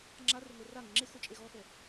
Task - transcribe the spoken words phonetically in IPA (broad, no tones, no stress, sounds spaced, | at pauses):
ŋ͡ǁ a r e ŋʷ ɛ r a ŋ ɪ ŋ͡ǁ e x ʊ t͡ʃʼ e ɣ ɔ x ɛ